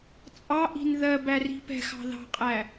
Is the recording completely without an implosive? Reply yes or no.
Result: yes